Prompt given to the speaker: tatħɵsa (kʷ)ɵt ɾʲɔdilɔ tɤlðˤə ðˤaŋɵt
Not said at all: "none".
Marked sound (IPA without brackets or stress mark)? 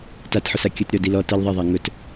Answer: kʲ